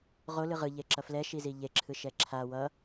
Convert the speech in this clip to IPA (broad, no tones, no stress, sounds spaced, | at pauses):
ʁ o l ɯ ʁ ɯ ʎ e ǁ ʌ f l ɛ ʃ i z i ʎ e ǁʰ ɯ ʃ ɛ ǁʰ a w ʌ